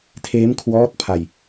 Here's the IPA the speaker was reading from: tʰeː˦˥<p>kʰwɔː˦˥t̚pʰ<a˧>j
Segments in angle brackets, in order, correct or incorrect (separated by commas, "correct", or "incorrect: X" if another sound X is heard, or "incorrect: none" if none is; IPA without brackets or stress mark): incorrect: m, correct